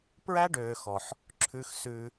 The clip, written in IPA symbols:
p ɹ æ˦ ɖ øː˨ x ɔ˨ ħ | ǁʰ ʉ˧ x s ʉ˧

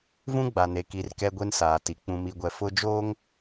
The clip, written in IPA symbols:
v ũ˦ ɡ͡b a˨ n e˨ k i˨ r k ɛ˦ ɡʷ e˦ n s aː˨ t i˨ k͡p ũ˨ m i˨ ɡʷ ɛ˨ f ʊ˦ d͡ʒ oː˦ ŋ

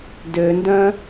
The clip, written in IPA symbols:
d ø n d œ̃

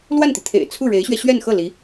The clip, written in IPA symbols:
l w a˥˩ n t̪ i˩ t̪ʰ ḛ˨˩ ɪ̯ t͡sʰ u˥˩ ɻ e˧˥ ɪ̯ ɕ ɥ ɛ˧ ɕ ɥ ɛ˥˧ n x ɤ˥˩ l i˧˥

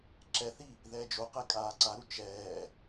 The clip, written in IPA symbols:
ǁ ɛ θ i | ð ɛː d͡ʒ o q ɛ kʼ aː ǀ a ɾ u t͡ʃ ɛː

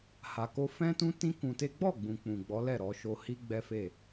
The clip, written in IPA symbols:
h a˨ k o˧ f ɛ̃˦ t ũ˦ t ĩ˦ k ũ˧ t e˦ ɡ͡b ɔ˦˨ ɡ͡b ũ˨ k͡p ũ˨ ɡ͡b ɔ˨˦ l ɛ˦˨ ɾ ɔ˧ ʃ o˧ h i˦ ɡ͡b ɛ˦ f e˦˨

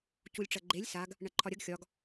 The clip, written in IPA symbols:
c u lʲ ʈ͡ʂ ɐ ɡ͡ǃ e lʲ s a ɡ | ɳ ɐ ǃʰ ɒ ɾʲ ɐ ɡ xʲ ɒ ɡ

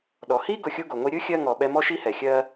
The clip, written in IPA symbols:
ɗ ɔ˨ h i˦ ɡ ʊ˧ xʲ u˦ ɡ o˨ ŋʷ i˧ ɾʲ ɯ˦ xʲ ɜ˧ ŋ ɔ˨ ɓ ɛ˧ m ɔ˦ ʃ i˦ h ɛ˨ xʲ ɜ˦

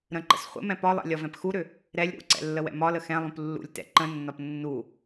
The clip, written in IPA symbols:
ɾ ə̃ ǃ ə̰ s χʷ ə̰ m ɛ̃ p ɒ lˠ ɛ̰ lʲ ɒ v ɛ̃ p x u ɾ ʏ | ɾ ɛ lʲ ɾ ṵ ǀ ɛ̰ lː ə w ɛ̰ m ɒ l ə x ɛ̃ lˠ ũ p lː ṵ lʲ t ɛ̰ ǃ ə̃ nː ɒ p nː u

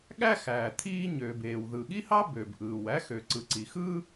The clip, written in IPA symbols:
ɠ æ˥ x æː˩ t̪ʰ iː˥ ɲ øː˩ b eː˩ w ð ɯ˩ ɠ i˥ h ɑ˥ b ø˩ b ʔ ɯː˩ w æ˥ x ø˩ ǀ ɯ˩ ǀ i˩ x ɯː˥

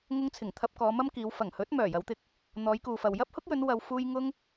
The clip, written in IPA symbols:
ŋ ʊ˧ ŋ t͡sʰ ɪ˨˩ ŋ t̪ʰ ɐ˨ p̚ k ɔː˨˧ m ɐ˥ m k iː˨˧ w f ɐ˨˩ ŋ h ɵ˨˥ t̚ m œː˨˩ j ɐ˨˧ w t̪ ɪ˧ k̚ | n̪ ɔː˨˧ j k uː˨ f ɐ˨ w j ɐ˥ p̚ h ʊ˥ k̚ j ɵ˨˧ n w ɐ˨ w f uː˧ j ŋ ʊ˥ ŋ

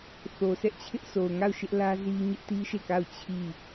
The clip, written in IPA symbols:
θ o˨ sʰ ɛ˦ ʔ t͡ɕʰ ɪ˦ ʔ sʰ o˨ ʊ̯ ŋ a˦˨ ʊ̯ ʃ ɪ˦ ʔ l ä˦ z i˦ ɲ ɪ˦ ʔ t i˦ ʃ e˦˨ k a˦˨ ʊ̯ t͡ɕʰ i˦˨

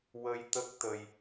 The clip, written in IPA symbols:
w ə˧ j t̪ ə˦˥ k̚ t̪ ə˧ j

